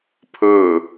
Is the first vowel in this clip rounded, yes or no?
yes